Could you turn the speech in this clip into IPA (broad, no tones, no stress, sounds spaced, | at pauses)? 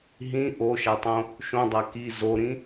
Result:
ɦ ĩ ʔ o ʃ a tˤ õ | ʃ õ dˤ a k i z o ɾ ĩ